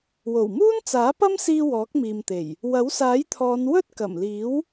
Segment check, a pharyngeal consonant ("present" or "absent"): absent